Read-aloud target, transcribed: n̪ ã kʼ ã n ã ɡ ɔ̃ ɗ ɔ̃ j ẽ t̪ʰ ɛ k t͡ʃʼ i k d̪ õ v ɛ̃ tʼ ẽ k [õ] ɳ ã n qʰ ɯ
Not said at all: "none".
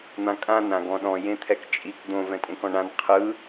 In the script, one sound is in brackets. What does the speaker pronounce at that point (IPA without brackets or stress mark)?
ɔ̃